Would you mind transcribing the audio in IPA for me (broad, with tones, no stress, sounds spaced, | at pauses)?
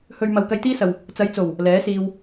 h ɵ˧ ɥ m ɐ˨ w k ɐ˧ j t̪ iː˥ s ɐ˨ w | t͡s ɐ˨˧ j t͡s o˨˩ w | l ɛː˨˥ s iː˧ w